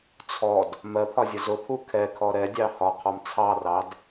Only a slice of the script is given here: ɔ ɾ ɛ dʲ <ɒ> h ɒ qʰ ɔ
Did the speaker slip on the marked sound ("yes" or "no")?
yes